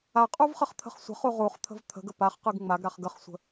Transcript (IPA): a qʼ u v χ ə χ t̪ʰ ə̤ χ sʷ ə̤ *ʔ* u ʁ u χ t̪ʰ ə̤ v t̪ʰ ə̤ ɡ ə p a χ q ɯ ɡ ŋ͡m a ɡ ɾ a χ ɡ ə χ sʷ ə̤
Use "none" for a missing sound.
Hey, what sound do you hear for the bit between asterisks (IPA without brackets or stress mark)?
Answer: χ